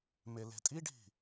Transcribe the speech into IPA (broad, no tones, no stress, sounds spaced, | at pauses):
m e l e̤ tʼ i ɖʱ i̤